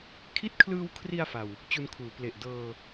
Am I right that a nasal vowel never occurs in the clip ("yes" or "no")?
yes